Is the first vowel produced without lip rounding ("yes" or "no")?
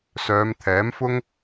no